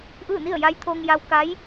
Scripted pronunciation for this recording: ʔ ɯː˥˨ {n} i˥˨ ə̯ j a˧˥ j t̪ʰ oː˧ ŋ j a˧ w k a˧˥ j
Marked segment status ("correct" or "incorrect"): correct